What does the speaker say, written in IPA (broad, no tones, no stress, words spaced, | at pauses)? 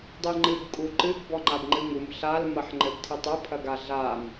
dˤiŋ͡ǃɨɡ kʼuǃɨɡ bɔŋ͡ǃabŋ͡ǃɨŋum ɬal mɐħŋ͡ǃɘbtʰitˤɘ pʰɐɡaɮam